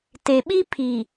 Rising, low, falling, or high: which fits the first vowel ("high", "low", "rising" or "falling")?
low